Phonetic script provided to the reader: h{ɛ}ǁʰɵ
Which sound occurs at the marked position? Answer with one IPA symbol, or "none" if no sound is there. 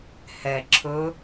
ɛ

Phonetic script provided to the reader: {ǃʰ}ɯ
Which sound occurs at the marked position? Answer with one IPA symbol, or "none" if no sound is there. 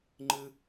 ŋ͡ǃ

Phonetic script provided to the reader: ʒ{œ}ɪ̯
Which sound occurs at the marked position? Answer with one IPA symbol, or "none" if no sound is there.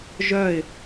œ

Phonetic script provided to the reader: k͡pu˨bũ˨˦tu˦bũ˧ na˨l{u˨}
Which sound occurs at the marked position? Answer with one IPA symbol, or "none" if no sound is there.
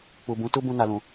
ũ˨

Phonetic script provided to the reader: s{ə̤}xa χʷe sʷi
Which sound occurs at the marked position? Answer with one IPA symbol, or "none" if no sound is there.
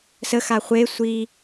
ə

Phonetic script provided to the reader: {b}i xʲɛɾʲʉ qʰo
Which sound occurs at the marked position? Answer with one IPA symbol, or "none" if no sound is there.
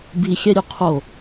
b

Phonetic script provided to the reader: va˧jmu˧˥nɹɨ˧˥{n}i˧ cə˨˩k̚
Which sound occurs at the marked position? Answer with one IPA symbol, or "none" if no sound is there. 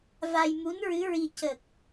ɹ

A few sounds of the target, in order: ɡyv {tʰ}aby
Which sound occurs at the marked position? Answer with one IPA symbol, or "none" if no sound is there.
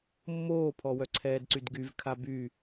kʰ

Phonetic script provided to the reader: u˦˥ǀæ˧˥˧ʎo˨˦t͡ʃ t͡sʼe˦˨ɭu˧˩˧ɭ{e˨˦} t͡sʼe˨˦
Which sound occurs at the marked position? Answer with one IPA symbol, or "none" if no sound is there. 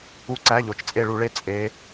e˧˥˧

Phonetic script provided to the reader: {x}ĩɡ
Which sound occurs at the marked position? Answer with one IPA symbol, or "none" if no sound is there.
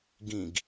ɡ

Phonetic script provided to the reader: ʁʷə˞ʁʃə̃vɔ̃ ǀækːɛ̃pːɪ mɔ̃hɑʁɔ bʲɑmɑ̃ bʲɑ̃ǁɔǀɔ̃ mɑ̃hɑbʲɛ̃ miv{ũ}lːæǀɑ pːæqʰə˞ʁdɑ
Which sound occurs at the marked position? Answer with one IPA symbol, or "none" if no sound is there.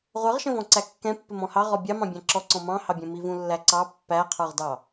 ũ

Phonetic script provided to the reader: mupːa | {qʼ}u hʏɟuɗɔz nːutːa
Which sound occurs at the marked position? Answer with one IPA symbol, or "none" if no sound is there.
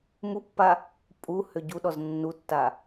pʼ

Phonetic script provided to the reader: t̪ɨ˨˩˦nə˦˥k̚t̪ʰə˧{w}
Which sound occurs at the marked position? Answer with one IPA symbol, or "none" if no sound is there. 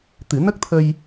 j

